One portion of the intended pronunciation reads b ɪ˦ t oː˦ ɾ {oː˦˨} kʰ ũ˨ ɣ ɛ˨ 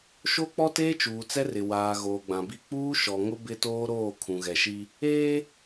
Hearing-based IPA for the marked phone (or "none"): oː˦˨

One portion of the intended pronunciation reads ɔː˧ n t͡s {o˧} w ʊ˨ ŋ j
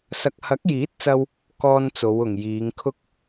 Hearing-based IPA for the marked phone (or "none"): o˨˧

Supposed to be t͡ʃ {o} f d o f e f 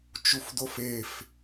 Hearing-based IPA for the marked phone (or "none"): u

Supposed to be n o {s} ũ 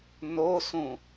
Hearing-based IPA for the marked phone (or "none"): s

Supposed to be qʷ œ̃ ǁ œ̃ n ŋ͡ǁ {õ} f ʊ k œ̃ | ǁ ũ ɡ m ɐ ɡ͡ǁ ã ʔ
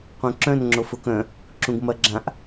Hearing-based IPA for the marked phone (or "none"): o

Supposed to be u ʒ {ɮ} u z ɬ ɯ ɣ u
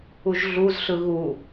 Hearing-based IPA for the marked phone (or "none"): ɮ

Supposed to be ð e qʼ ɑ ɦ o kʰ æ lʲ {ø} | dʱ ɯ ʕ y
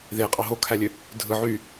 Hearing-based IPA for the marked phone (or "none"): ø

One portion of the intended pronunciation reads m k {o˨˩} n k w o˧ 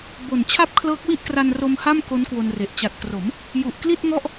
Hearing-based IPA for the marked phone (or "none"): o˦˥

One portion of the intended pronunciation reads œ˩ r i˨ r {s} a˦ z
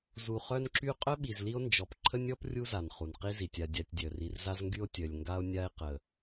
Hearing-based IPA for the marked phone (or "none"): z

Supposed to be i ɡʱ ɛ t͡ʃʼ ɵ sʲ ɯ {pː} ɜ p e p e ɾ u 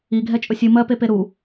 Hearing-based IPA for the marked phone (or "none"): m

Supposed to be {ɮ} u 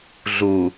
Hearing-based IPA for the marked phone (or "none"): ɮ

